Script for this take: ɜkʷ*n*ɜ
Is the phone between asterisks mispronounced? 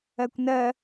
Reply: no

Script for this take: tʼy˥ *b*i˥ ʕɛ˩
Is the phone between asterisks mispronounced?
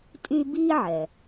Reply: no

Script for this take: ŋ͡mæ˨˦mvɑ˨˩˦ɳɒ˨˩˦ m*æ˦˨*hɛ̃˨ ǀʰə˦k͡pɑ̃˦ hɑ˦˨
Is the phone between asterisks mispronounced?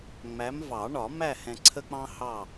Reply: no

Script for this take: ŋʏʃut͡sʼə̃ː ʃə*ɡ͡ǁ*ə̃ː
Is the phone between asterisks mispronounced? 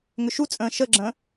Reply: no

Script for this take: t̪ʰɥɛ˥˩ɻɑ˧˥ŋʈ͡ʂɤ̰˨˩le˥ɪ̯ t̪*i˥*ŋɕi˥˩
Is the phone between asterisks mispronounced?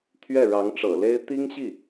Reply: no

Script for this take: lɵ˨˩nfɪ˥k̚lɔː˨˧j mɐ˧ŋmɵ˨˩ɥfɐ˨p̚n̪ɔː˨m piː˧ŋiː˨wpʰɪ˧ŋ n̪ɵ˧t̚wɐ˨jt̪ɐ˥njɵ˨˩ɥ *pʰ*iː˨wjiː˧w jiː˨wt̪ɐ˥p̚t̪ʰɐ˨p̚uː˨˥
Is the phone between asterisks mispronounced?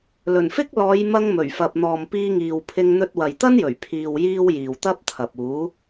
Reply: no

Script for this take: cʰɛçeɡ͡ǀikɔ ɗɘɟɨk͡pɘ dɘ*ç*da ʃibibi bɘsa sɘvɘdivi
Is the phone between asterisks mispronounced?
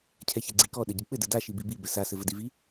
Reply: yes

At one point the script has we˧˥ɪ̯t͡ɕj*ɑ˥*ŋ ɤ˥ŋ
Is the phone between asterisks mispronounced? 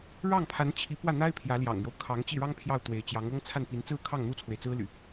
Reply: yes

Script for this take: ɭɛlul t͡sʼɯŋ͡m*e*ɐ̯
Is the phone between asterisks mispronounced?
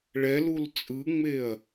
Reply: no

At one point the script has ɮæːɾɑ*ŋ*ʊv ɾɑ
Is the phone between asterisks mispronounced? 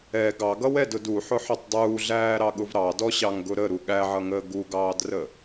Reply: yes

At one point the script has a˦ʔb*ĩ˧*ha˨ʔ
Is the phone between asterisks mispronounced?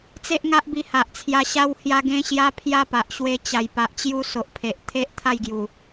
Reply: yes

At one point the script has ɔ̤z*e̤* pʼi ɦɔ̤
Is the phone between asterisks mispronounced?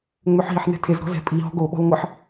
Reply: yes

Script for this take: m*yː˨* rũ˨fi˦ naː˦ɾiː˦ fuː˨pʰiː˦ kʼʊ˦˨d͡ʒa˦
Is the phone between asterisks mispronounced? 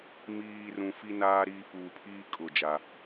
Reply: yes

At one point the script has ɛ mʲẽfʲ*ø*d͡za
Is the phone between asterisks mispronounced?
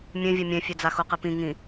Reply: no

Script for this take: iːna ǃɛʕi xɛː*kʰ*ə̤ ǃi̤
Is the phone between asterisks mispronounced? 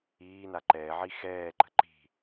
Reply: yes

